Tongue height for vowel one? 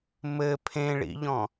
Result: mid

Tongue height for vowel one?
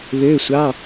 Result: mid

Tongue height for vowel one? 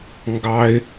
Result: low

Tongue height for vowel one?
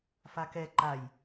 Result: low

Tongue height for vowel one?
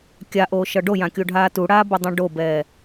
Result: low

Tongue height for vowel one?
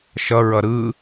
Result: mid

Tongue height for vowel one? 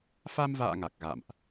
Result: low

